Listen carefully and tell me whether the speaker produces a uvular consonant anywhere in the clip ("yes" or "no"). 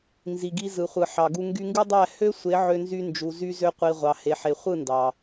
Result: yes